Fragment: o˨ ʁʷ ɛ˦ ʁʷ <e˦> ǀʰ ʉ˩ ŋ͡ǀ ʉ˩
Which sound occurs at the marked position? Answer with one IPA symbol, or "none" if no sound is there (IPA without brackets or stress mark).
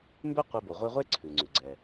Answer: e˥